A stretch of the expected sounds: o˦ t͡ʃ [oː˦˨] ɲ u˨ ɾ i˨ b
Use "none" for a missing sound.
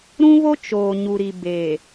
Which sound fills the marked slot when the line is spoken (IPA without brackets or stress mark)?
oː˨